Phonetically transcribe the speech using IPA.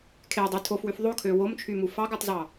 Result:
kʰ e dˤ ø tʰ o f w y f ðˤ o kʰ ø w o m t͡ʃʰ y m u f ɑ ɡ u tˤ z ɑ

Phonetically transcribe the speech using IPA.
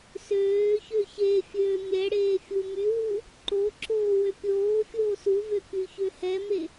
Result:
s øː ç ø ç e fʲ øː mʲ ɛ ɽ eː fʲ u m y w u | ǃ o ǁ oː w ø pʲ oː fʲ oː s u v ø k y ç ø h ɛ m e

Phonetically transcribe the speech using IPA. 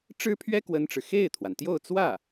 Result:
ʈ͡ʂ ɻ̩˥ pʰ ɥ ɛ˥ k w ə˥ n ʈ͡ʂ ɻ̩˨ x e˥˩ ɪ̯ t̪ʰ w a˩ n t̪ j o˥˧ ʊ̯ t͡s w ä˥˩

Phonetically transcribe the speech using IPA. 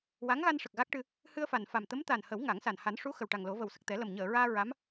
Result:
w a˧˥ ŋ ɣ a˧ n ʂ ə˨˩ k̚ ɣ a˦˥ k̚ ʈ ɨ˧ | h ɨ˧ ə̯ f a˨˩ n f a˨˩ m t̪ ə˧˥ m t̪ a˨˩ n h ə˨˩˦ w ŋ a˨˩˦ ŋ s a˨˩ n h a˨˩˦ n ʂ u˧˥ x ə˨˩ w ʈ a˨˩ ŋ l o˨˩˦ v ə˨˩ w s ə˨˩ k̚ t̪ ɛ˨˩˦ l ə˨˩ m ɲ əː˨˩˨ ɹ aː˧ ɹ a˧˥ m

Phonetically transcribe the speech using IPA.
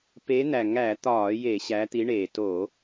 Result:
p e˨˦ n̪ æ˨˩ ŋ æ˧˩˧ t̪ ɒː˧˩˧ j e˧˩˧ ɕ æ˨˦ t̪ i˨˦ ɳ eː˨˩ t o˧˩˧

